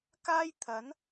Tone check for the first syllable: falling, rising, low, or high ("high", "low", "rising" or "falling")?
high